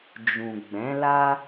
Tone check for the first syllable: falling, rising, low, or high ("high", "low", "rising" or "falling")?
low